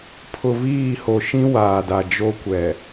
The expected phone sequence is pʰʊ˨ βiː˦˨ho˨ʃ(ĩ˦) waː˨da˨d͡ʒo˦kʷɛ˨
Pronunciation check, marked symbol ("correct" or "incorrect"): correct